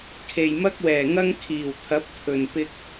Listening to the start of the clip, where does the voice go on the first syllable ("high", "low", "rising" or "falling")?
low